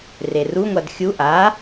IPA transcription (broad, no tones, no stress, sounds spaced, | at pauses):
r e r u ŋʷ a d xʲ u ʔ a